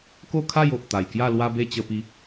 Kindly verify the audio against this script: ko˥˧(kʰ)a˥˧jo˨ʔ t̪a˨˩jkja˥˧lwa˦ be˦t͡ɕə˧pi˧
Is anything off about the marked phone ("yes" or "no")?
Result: no